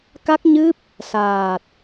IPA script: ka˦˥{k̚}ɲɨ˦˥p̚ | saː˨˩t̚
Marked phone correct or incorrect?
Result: correct